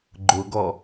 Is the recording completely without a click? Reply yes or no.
no